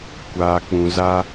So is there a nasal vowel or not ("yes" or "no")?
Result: yes